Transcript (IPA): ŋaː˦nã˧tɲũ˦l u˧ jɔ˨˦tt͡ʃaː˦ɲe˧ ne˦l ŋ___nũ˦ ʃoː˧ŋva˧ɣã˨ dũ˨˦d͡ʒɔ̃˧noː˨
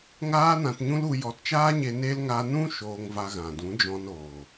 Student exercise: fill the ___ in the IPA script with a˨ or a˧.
a˧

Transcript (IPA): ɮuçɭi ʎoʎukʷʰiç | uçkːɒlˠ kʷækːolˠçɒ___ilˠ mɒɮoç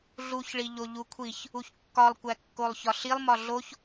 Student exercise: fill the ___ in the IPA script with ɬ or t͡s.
ɬ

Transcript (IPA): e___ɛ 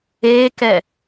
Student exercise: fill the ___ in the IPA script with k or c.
k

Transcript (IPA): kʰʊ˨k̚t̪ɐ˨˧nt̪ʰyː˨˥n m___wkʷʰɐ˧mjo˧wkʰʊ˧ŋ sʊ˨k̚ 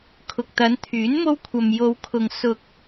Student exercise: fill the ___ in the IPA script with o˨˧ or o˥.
o˥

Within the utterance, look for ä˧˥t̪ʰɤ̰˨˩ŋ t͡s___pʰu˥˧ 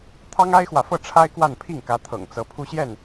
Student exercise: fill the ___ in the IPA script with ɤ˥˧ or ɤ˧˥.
ɤ˧˥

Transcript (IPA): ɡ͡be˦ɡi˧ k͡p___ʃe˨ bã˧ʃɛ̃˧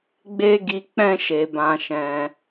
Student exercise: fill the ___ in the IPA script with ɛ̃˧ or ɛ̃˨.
ɛ̃˧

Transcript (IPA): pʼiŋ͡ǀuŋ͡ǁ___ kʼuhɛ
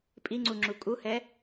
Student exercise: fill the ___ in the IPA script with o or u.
u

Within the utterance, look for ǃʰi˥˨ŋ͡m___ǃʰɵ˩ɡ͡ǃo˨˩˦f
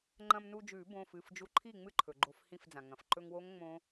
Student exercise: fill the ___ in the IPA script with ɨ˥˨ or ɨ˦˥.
ɨ˥˨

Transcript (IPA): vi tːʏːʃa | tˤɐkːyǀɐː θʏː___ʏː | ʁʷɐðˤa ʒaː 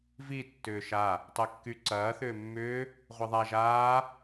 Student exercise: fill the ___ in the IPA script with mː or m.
mː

